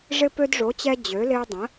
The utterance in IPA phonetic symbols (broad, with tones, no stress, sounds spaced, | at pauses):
ʐ ɪ˦ p ø˦ d ʐ o˨˥ t͡ɕ ɛ˦ d͡ʑ ø˨˥ l ɪ˦ ə̯ dˤ ə̃˨˥